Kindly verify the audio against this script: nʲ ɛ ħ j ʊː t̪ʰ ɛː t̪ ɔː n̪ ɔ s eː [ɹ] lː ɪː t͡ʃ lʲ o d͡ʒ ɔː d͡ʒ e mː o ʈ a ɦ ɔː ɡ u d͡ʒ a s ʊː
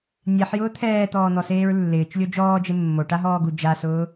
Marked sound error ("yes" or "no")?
no